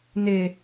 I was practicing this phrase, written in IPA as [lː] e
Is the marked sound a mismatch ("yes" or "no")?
yes